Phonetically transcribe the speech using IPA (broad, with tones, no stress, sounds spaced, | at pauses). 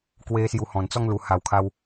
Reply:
k w e˧ s j u˧ h ɔ̃˨˩ n t͡s ɔ˦ ŋ l u˨˩ h a˨˩ w kʰ a˧ w